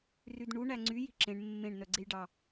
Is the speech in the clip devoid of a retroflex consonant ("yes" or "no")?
no